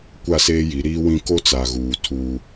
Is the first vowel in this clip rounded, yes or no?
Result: no